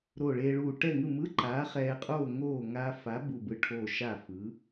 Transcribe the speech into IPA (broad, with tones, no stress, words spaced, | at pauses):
ɾoː˧˩ɭeː˧ɭuː˧˩ ʈɛ˥˨ŋɯ˥˨ mɯ˧˥˧ǃaː˨˥ χɛː˧qʼoː˥˨ ŋoː˥˨ ŋaː˧fa˨˥ bu˧˩bɯ˧˩ʈʰoː˧˩ ʃa˥˨ fɯ˨˥